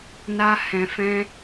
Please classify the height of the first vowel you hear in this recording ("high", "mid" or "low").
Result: low